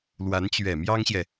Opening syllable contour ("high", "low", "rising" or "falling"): rising